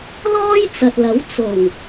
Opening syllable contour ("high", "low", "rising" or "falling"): high